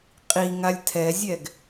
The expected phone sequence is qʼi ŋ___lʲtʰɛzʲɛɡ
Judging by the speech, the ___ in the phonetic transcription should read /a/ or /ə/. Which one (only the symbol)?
a